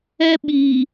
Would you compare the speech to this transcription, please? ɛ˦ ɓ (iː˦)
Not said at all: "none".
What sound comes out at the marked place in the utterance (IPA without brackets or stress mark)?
iː˨